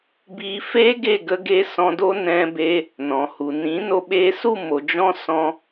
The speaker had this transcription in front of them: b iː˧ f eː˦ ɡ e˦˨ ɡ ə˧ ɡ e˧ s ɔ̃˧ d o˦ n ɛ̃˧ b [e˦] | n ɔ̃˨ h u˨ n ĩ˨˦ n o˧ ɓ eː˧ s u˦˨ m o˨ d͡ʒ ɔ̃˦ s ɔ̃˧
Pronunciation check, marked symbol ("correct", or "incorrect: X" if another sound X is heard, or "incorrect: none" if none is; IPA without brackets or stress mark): incorrect: e˧